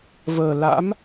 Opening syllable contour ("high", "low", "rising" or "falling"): low